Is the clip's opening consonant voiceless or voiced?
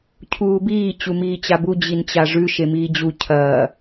voiceless